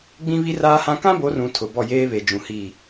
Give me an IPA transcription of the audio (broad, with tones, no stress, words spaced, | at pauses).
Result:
ɡ͡bĩ˦βi˦raː˦hã˦ kã˦bo˨˦rũ˨ tʰʊ˨ bɔ˦˨jeː˦βe˨d͡ʒũ˨ hi˦˨